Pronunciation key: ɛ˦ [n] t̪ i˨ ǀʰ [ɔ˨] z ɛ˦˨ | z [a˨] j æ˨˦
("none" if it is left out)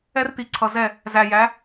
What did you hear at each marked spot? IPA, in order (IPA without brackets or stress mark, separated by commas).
r, ʌ˨, æ˨